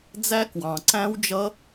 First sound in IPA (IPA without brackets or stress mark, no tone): d͡z